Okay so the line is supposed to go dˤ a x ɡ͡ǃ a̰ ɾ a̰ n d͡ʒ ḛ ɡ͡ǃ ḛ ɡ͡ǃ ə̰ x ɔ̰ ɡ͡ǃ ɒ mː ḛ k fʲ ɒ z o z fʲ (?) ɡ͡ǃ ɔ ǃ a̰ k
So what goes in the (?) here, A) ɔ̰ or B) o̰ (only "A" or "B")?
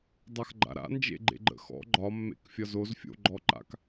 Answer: B